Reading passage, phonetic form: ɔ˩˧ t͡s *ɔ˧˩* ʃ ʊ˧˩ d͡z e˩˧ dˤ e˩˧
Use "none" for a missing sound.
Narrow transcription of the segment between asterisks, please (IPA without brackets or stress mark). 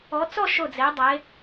ɔ˥˧